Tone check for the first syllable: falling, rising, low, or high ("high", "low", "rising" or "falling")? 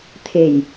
low